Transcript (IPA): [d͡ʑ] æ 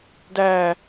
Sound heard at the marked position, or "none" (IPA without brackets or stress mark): d